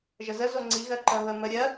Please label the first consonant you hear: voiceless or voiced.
voiced